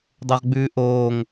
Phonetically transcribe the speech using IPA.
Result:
dˤ o ʁ ɡ͡b ʉː ʔ oː ŋ

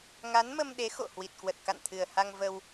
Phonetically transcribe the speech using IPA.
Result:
ŋ a˨˦ n m ə˧ m ɗ e˨˦ x o̰˧˨ h w i˨˩ t̚ k w ə˨˩ t̚ k a̰˧˨ n t̪ʰ ɨ˨˩ ə̯ h a˧ ŋ v ə˧ w

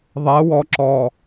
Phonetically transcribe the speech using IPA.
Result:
ðˤ ɛ w ɔ ǁ ɔ

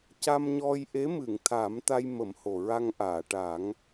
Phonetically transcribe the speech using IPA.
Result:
c a˧ m ɲ ɔ˧ j ʔ e˧˥ m ɨ˨˩˨ ŋ t̪ʰ a˨˩˦ m t̪ a˧ j m ə˨˩˦ m h o˨˩ ɹ a˧ ŋ ʔ aː˨˩˨ ʈ a˨˩˦ ŋ

